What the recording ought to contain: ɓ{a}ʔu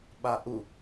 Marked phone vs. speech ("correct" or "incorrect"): correct